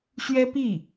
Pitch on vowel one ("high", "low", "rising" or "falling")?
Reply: high